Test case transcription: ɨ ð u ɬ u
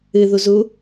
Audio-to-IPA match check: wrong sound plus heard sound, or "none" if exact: ɬ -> z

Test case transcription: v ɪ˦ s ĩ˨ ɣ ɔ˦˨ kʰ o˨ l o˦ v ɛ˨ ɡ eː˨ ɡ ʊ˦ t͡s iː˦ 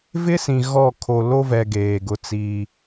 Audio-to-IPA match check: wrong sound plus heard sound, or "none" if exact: none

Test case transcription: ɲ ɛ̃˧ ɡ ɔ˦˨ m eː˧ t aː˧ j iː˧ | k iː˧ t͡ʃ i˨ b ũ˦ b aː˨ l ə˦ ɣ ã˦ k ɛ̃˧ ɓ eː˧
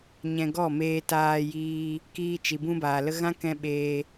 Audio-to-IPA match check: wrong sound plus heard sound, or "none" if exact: none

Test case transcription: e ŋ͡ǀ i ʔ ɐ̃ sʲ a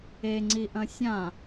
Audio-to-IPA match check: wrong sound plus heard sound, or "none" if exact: a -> ã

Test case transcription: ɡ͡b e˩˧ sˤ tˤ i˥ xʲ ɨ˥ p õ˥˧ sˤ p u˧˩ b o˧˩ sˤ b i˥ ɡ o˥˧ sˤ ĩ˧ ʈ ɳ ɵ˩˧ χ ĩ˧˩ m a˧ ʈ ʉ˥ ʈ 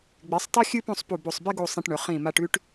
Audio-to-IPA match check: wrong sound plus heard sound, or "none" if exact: none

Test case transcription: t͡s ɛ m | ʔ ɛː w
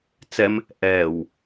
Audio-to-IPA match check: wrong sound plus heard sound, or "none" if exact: none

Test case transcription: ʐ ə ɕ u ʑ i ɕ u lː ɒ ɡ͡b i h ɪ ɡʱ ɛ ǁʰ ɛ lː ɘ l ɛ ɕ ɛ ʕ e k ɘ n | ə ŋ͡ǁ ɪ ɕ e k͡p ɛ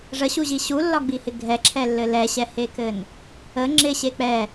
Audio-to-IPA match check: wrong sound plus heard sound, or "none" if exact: ʕ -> h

